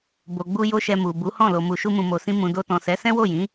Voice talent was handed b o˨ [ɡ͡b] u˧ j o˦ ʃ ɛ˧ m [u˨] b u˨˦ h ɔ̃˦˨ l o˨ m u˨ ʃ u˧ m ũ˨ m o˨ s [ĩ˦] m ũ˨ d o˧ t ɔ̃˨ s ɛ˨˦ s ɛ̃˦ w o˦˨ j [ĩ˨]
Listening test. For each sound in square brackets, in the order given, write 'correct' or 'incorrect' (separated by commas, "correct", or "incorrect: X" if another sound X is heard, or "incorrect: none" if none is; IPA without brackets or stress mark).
correct, correct, incorrect: ĩ˧, incorrect: ĩ˨˦